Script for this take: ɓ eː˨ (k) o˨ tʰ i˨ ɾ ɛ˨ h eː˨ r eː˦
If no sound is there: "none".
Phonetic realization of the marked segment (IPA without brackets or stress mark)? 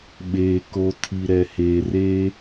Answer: k